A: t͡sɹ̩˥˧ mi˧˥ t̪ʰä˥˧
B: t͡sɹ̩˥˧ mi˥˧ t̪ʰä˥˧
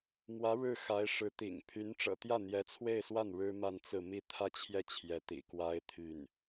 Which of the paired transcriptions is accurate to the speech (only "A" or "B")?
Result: B